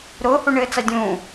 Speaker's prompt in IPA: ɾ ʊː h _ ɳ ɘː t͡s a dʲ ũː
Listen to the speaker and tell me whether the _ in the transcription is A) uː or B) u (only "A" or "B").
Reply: B